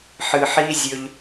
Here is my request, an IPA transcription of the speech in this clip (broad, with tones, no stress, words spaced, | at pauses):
ħɨ˨ħi˦zʲɵ˧ʎ